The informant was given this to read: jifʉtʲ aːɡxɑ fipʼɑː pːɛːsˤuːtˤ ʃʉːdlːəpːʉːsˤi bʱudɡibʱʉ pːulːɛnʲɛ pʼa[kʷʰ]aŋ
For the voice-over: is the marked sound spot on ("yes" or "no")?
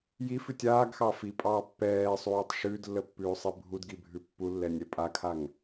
no